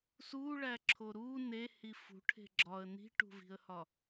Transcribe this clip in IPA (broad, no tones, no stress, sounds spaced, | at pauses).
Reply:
s u ɭ æ ǁʰ o ɾ u n e h i f ṳ ʈʰ e̤ ɡ͡ǁ ɒ ə̯ n i̤ ʈ ṳ v i̤ ə̯ h ɒ